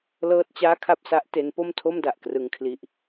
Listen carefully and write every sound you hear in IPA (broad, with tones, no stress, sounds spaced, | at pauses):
l ɤː˥˩ t̚ t͡ɕ aː˥˩ kʰ a˥˩ p̚ s a˦˥ ʔ t e˦˥ n p o˥˩ m tʰ o˥˩ m d a˨˩ ʔ k r ɯ˧ ŋ kʰ l i˦˥ ʔ